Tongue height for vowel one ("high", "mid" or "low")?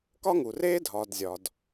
low